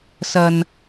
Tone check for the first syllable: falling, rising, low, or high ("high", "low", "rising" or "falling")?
low